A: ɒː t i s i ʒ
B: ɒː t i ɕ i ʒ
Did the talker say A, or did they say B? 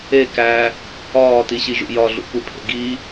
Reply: B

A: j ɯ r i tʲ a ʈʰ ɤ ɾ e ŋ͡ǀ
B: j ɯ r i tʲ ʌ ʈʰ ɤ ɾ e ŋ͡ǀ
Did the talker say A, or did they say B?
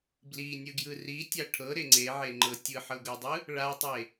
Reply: A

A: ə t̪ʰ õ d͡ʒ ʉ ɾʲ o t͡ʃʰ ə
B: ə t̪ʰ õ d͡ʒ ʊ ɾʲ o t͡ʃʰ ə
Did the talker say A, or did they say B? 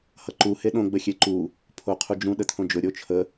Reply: B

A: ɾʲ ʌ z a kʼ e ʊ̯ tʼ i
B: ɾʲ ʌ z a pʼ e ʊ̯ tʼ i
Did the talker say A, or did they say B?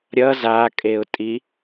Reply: A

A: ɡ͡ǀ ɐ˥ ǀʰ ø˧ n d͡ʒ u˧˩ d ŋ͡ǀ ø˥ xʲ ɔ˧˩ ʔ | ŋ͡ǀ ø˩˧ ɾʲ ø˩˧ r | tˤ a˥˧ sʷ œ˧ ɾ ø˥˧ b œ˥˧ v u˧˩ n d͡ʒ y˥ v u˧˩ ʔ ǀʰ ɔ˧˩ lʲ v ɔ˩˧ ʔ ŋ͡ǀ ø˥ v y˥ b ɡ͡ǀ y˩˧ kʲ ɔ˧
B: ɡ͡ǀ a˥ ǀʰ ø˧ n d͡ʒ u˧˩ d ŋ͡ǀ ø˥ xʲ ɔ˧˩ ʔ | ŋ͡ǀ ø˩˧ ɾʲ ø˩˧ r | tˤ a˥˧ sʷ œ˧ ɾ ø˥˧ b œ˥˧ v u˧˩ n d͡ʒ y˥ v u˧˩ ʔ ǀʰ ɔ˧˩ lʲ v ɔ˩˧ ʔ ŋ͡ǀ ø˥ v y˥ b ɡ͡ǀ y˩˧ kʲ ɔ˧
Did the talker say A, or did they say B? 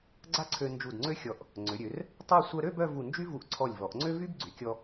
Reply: B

